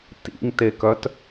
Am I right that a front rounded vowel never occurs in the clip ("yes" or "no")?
no